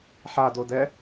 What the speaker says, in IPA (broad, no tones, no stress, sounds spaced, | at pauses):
ħ a d o d ɛ